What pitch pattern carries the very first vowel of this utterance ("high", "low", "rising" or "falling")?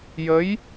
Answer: rising